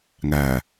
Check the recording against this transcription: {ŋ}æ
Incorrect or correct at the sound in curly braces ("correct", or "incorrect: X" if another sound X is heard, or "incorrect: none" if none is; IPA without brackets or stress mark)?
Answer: correct